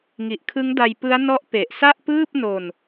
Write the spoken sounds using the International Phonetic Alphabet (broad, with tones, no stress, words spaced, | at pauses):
ŋi˨˩ʔkʰɯ˦˥ŋda˧jpɯ˦˥a̯ nɔ˦˥ʔpe˨˩ʔsa˥˩ʔpɯː˥˩p̚ no˧n